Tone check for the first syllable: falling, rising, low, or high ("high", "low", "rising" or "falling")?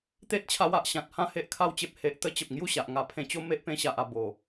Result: high